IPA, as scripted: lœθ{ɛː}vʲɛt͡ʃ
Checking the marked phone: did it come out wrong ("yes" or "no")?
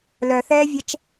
no